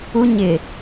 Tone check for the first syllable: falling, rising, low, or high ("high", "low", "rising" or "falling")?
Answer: high